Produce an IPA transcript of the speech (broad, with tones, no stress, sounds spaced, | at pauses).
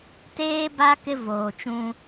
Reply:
t eː˦ b a˦ k ɪ˦ v oː˨ t͡ʃ ũ˦